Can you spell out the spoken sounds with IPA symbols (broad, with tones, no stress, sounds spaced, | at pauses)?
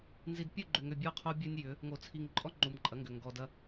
n z i˨ d pʲ u˦˨ ɡ͡ǃ ʏ˨ ŋ ʏ˨ bʲ ɔ˦ qʰ o˦ bʲ ɜ˦ nʲ j ʏ˨˦ | ŋ o˨ t͡sʰ i˨ ŋ ǃʼ ɔ˦ ŋ͡ǃ u˨ m ǃʼ ɐ˨˦ ŋ ɡ ʏ˨ ŋ ɡ ɔ˨ d ɐ˦